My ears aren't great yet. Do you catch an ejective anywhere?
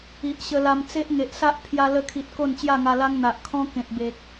no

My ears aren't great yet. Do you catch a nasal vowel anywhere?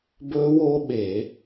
no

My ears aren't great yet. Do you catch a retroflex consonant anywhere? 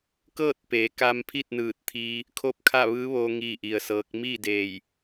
no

